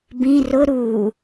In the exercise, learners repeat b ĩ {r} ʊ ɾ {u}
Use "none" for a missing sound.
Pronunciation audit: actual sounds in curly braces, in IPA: r, u

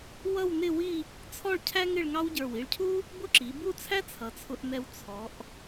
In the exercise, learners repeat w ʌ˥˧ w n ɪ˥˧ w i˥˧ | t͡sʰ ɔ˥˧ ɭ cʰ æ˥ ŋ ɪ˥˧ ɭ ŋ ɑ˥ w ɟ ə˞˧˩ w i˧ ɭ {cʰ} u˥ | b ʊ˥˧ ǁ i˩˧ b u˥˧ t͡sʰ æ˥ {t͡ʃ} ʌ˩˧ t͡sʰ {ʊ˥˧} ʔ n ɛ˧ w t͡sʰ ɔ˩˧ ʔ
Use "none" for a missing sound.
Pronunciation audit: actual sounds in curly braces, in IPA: cʰ, t͡sʰ, ʊ˧

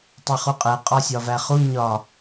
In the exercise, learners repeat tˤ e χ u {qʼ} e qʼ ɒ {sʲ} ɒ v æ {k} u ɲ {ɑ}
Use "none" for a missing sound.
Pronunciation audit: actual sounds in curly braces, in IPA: qʼ, sʲ, χ, ɒ

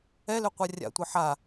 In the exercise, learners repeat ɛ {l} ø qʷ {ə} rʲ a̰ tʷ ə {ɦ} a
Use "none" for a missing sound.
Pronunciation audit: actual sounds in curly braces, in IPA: l, a, ħ

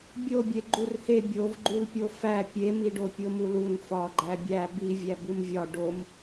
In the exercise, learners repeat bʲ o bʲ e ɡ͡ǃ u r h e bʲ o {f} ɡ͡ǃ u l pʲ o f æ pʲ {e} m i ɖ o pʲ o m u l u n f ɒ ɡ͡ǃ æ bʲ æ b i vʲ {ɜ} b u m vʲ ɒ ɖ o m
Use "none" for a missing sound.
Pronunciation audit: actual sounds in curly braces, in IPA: v, e, æ

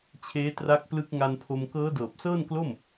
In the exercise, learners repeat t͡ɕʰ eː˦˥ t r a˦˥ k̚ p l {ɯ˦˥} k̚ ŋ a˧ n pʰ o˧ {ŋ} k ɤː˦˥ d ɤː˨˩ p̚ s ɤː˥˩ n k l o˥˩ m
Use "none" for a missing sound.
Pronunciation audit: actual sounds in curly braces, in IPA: ɯ˦˥, m

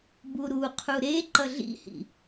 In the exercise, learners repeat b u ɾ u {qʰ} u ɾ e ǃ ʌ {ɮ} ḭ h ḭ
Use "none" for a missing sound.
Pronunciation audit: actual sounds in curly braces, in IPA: qʰ, ɮ

